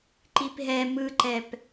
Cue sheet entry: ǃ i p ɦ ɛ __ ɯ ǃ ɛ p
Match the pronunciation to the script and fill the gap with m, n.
m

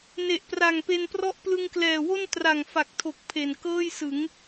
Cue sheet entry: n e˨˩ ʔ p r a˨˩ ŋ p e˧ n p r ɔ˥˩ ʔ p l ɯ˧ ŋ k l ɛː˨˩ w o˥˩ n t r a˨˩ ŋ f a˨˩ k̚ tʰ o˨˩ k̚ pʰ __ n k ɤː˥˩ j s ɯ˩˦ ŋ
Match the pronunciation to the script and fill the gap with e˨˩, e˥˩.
e˨˩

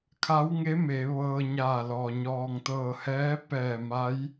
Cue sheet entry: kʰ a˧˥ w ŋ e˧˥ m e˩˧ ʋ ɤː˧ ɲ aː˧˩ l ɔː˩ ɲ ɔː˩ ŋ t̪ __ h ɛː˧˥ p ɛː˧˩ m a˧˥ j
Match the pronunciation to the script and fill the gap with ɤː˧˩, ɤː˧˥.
ɤː˧˩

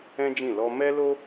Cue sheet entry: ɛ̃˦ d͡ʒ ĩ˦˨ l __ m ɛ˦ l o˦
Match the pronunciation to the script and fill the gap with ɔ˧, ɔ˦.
ɔ˧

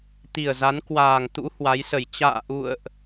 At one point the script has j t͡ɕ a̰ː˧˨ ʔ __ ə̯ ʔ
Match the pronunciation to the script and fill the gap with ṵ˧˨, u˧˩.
ṵ˧˨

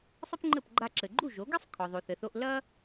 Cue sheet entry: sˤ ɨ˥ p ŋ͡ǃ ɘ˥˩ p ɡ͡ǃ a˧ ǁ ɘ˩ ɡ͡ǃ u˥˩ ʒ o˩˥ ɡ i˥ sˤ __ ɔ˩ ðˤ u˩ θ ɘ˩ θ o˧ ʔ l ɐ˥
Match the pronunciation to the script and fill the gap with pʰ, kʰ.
kʰ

